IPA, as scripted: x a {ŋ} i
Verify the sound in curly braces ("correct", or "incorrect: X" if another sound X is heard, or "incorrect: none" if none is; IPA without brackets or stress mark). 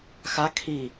incorrect: kʰ